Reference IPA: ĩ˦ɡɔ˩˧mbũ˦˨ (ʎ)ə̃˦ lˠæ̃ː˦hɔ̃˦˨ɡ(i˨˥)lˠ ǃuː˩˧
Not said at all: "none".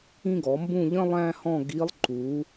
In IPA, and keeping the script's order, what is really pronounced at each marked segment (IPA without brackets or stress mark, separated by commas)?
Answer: ʎ, i˨˥